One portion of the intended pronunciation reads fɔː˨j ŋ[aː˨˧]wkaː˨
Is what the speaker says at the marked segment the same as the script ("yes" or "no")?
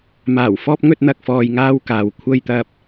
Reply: no